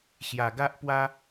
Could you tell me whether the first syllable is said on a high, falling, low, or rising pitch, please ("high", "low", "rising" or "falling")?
low